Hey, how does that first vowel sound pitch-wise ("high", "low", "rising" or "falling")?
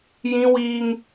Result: high